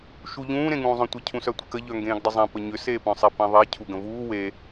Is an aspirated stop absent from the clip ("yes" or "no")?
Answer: no